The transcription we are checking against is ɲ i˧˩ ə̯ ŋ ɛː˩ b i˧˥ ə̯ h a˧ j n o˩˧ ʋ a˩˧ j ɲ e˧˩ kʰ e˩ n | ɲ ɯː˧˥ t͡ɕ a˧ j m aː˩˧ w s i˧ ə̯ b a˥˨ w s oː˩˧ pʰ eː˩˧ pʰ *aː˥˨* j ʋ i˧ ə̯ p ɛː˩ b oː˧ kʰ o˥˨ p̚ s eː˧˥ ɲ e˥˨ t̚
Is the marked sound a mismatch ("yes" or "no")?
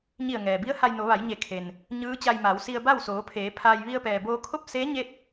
yes